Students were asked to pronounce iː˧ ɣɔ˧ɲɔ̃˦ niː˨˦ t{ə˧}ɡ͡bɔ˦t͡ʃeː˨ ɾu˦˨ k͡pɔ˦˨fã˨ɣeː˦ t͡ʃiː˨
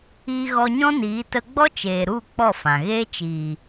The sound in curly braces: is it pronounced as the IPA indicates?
yes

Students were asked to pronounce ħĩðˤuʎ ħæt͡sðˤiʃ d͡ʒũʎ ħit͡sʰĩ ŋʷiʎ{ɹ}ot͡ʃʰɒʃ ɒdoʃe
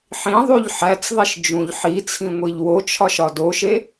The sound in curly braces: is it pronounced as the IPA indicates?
no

